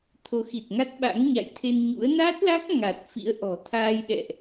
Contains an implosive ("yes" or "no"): yes